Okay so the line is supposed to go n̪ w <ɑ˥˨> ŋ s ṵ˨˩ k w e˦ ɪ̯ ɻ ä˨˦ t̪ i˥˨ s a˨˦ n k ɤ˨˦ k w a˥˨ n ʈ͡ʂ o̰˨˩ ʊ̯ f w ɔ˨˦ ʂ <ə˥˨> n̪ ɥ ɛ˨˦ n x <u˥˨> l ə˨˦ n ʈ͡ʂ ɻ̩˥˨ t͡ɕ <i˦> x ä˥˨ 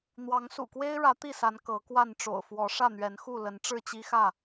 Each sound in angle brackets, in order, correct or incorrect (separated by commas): incorrect, incorrect, correct, correct